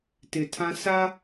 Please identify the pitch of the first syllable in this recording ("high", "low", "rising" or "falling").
low